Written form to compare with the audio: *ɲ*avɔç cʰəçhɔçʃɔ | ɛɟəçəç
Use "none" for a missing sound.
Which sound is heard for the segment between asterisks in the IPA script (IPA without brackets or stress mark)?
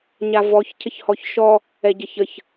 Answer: ɲ